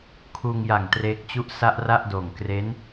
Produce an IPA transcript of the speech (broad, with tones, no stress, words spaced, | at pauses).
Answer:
kʰuː˧ŋja˨˩ŋ treː˦˥k̚t͡ɕu˥˩ʔ sa˥˩ʔra˥˩ʔdoː˨˩ŋ kre˦˥n